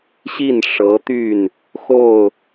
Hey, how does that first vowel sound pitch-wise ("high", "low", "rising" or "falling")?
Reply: falling